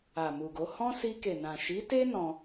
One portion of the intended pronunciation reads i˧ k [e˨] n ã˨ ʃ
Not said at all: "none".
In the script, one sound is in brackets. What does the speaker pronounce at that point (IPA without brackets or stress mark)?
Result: e˨